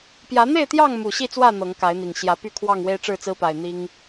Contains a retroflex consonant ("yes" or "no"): yes